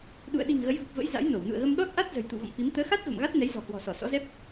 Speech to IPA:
ɗ ṵ˧˨ ə̯ ɗ i̤˨˩ ŋ ɣ ə˨˦ j v u˨˩ p̚ v ə̰˧˥ j z a̰˧˥ j n o˧˩ w n ṵ˧˨ ə̯ ɣ ə˧ m ɗ ɔ˦˥ t̚ ʔ a˦˥ t̚ z ə̤˨˩ j t̪ ṵ˧˨ v ɔ̰˧˨ m f i˨˦ m t̪ əː˨˦ x a˦˥ t̚ v ə̰˧˨ m ɣ a˦˥ t̚ n ɛ˨˦ j z ɔ̤˨˩ h w ɔ̤˨˩ s ɔ˧˩ s ɔ̰˧˥ z ɛ˦˥ p̚

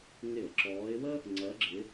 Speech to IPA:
ŋ ɪ˧˩˧ ə̯ ǁ ɔː˨˦ ɪ̯ w ə˥ | ŋ͡ǀ ɜ˨˦ ɡ͡ǁ ɪ˨˦

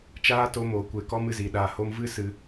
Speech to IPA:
t͡ʃ aː˦ t o˧ m oː˨ kʷ eː˨ k ɔ˦ m ɨ˨ z i˨ ɗ a˨ h o˧ m v ɨ˦ s ɨ˧

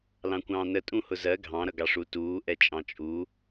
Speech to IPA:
l ɑ̃ kʷ ɑ̃ː n ə tʼ ũ h ʊ z ɜ ɡʱ ɑ̃ ɾ ʌ ɡ ɑ ʂ u t uː ʔ ɛ t͡ʃʼ ɑ̃ t͡ʃʼ u

